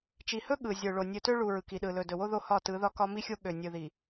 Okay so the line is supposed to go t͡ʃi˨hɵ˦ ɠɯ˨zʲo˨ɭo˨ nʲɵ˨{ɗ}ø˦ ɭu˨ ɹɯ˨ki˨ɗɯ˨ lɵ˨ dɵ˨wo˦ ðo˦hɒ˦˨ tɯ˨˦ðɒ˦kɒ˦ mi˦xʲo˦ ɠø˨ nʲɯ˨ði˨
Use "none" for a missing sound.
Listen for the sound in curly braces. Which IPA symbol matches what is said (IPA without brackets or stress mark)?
t